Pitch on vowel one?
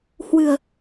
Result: low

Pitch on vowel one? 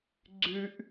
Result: high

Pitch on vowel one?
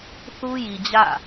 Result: high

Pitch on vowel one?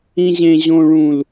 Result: low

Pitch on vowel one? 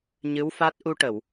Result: rising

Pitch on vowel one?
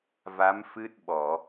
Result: rising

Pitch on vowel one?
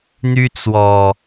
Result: high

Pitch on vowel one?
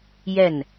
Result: falling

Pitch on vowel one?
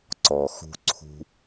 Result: low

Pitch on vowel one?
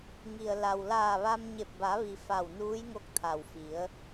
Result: low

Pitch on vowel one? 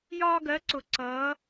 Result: high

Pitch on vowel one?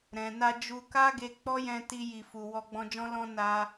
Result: low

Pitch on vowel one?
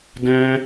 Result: high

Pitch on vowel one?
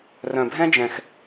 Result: low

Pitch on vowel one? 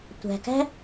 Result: low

